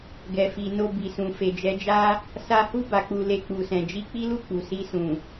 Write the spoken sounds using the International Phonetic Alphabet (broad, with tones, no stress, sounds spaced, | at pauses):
ɡ ɛ˨ f i˨ n o˧ b i˨ s ũ˨ f e˨ d͡ʒ ɛ˨˦ d͡ʒ a˦ | s a˧ h u˦ b a˧ k͡p u˧ l e˧ k͡p u˨ s ɛ̃˨ d͡ʒ i˧ k͡p i˦ l u˦˨ k͡p u˨ s i˧ s ũ˨